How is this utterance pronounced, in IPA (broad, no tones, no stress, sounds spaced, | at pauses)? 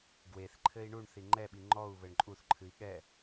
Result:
ɡ w e θ ǃʰ ɘ i̯ ɳ u ɳ θ i ŋ͡ǃ ɛ ɓ i ŋ͡ǃ ɔ u̯ β ɘ ɳ ǃʼ u θ ǃʰ ɨ i̯ ɠ ɛ